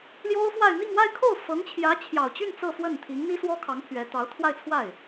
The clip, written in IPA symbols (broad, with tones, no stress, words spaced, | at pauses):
ljo˥ʊ̯fwa˥˧ɪ̯ n̪i˥˧ŋwa˥˧ɪ̯kʰo˥˩ʊ̯ fɤ˧˥ŋt͡ɕʰjä˧˥t͡ɕʰjɑ˨˩ʊ̯t͡ɕy˥˧n t͡sɤ˥˧fwə˥˩n t̪ʰi˧˥ŋn̪i˥swɔ˥kʰɑ˧˥ŋ pʰɥɛ˧˥ t̪ɑ˧˥ʊ̯t̪ʰwa˥˧ɪ̯t͡sʰwa˥˩ɪ̯